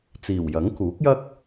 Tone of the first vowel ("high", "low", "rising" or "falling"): low